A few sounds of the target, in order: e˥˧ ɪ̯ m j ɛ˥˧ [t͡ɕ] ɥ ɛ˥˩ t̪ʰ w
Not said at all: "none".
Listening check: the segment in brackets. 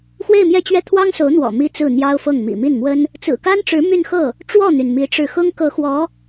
t͡ɕ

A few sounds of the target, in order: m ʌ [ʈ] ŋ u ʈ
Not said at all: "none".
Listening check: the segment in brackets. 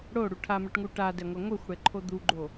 ʈ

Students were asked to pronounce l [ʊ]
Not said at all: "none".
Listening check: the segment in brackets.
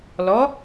ɔ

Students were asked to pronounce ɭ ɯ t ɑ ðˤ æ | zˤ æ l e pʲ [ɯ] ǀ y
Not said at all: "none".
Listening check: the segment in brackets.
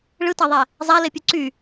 u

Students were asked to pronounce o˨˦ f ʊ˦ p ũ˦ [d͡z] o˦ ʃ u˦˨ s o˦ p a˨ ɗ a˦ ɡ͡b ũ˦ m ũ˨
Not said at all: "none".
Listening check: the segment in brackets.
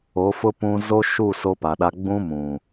z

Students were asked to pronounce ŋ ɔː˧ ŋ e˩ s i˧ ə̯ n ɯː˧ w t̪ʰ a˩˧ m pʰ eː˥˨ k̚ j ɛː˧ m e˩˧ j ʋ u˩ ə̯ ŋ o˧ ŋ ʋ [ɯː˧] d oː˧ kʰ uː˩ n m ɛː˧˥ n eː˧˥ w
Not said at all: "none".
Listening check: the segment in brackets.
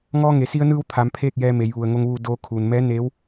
uː˧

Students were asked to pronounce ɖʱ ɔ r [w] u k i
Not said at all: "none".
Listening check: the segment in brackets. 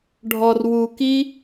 w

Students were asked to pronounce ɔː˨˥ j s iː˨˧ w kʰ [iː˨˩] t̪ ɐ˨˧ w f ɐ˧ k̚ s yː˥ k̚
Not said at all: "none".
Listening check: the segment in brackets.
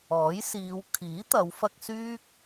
iː˨˥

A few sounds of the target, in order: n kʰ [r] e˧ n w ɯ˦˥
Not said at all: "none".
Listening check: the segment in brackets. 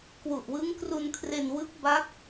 r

